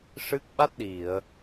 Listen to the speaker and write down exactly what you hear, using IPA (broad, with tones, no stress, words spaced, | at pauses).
ʂɨ˦˥k̚ ɓa˦˥t̚ɗi˨˩˨ə̯